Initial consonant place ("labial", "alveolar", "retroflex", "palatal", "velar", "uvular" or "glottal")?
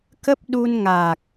velar